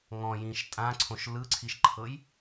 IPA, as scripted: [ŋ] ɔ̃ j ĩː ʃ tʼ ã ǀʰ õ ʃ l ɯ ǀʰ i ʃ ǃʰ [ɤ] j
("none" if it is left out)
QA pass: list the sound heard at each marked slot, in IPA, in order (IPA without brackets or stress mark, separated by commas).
ŋ, ɤ